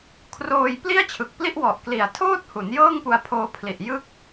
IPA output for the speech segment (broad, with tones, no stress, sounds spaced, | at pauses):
kʰ r oː˧ j p l i˥˩ a̯ t͡ɕʰ ɯ˨˩ k̚ p l i˥˩ ʔ w ɔ˨˩ ʔ k l i˨˩ a̯ tʰ oː˥˩ t̚ h u˩˦ n j ɤː˥˩ ŋ p u˧ a̯ pʰ oː˧ pʰ l i˨˩ ʔ j ɯ˦˥ k̚